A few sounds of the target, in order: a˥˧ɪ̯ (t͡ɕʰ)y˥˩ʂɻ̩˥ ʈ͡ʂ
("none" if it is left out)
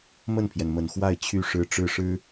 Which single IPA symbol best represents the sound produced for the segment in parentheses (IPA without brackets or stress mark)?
t͡ɕʰ